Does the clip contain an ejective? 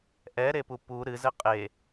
yes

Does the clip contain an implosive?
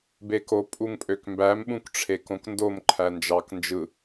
yes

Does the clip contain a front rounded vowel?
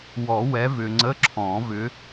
yes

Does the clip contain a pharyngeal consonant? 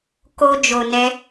no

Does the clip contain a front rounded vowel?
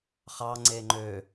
yes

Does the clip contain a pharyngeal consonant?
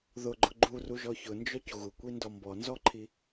no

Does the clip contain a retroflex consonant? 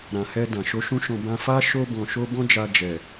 no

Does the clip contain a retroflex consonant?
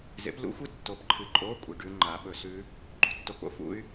yes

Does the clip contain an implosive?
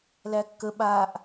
yes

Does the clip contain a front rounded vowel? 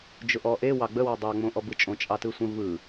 no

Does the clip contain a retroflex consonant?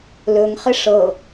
yes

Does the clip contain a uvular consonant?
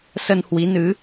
no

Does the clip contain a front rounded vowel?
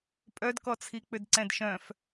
yes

